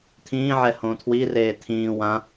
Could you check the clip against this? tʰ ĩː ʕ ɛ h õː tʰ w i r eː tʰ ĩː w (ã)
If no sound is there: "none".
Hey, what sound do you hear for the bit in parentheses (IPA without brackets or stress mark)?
ã